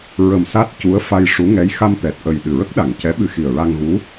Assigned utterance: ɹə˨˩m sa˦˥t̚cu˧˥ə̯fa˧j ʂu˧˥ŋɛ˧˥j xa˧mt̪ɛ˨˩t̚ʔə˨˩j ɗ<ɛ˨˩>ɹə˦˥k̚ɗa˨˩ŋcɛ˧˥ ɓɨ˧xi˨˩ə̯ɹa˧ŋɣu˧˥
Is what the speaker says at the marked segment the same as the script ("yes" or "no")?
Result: no